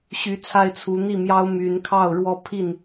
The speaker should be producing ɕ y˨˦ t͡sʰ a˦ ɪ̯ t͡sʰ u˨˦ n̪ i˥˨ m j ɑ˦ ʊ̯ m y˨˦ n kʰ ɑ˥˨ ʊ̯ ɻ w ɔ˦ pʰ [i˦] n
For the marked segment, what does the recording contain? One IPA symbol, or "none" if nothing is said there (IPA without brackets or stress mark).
i˥˨